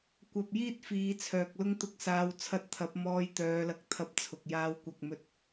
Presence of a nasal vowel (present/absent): absent